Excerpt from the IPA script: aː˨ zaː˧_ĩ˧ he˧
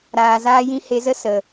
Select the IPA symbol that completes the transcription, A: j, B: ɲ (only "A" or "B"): A